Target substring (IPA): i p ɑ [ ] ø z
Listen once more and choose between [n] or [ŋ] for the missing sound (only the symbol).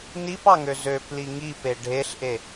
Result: ŋ